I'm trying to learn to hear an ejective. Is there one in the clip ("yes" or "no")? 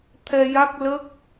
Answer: no